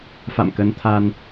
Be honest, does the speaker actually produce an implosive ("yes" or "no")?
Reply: no